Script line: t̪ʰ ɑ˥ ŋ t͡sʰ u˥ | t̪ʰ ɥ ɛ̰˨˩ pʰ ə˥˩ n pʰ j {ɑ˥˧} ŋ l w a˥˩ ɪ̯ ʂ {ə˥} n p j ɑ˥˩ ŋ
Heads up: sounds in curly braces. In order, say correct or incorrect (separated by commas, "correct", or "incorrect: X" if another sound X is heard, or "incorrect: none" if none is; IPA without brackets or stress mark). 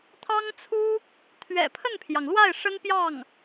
incorrect: ɑ˩, correct